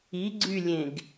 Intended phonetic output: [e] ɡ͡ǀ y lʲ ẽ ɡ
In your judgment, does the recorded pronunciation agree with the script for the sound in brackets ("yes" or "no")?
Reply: no